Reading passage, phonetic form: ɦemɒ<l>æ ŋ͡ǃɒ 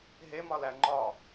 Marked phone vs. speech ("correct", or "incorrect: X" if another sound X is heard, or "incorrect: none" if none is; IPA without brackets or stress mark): correct